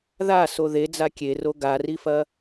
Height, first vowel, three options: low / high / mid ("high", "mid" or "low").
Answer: low